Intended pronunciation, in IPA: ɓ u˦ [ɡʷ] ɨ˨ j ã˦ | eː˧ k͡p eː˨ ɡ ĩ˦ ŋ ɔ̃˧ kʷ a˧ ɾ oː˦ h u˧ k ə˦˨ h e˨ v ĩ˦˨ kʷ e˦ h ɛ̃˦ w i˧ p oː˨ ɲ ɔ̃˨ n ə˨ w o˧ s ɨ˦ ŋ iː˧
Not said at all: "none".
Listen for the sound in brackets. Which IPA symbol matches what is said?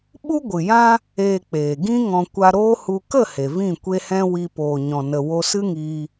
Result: ɡʷ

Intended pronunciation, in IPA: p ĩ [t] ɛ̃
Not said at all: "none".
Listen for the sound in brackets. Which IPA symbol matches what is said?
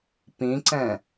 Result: ǀ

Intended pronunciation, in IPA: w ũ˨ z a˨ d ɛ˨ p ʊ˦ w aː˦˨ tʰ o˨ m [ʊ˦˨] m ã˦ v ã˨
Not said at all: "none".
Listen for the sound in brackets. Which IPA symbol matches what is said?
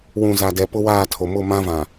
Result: ʊ˦˨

